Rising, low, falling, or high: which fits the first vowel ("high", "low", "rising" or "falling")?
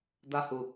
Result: high